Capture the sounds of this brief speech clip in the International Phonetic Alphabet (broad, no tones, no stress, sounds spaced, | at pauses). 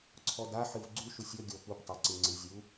ǀʰ ɔ d a ħ ɨ v ɡ͡ǀ u ʃ u sʲ ɔ ɡʲ ɔ p u p tˤ æ ǀ ɨ ŋ͡ǀ ɨ zʲ u